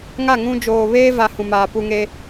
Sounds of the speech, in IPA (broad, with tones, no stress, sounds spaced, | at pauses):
ŋ a˦˨ ŋ ũ˦ d͡ʒ oː˨ β eː˦ v a˨ h ũ˨ m aː˨ p u˨ ŋ e˦